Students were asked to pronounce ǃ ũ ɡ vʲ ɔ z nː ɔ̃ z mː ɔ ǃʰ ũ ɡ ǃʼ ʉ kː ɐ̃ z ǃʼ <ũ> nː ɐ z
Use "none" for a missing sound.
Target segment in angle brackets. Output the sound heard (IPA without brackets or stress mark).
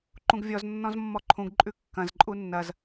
u